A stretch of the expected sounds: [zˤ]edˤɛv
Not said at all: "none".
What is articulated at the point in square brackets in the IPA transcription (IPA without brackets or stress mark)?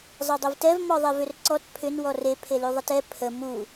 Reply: zˤ